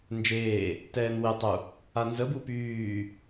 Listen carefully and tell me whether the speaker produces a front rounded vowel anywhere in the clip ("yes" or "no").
yes